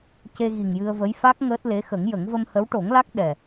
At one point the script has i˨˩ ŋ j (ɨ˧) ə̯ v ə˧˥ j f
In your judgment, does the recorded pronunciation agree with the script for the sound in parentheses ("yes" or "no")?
yes